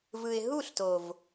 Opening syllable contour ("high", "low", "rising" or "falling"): low